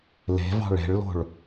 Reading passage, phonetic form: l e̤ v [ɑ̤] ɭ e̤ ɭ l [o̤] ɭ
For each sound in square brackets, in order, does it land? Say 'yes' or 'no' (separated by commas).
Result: yes, yes